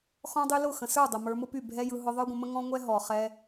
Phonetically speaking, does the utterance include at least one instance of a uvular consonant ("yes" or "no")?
yes